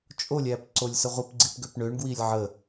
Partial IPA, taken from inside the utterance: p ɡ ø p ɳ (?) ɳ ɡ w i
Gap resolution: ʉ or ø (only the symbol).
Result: ø